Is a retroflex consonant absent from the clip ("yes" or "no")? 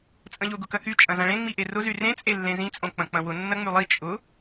no